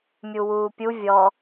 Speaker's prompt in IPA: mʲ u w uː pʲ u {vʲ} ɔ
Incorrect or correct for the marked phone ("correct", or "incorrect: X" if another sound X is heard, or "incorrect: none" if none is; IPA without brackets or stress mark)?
correct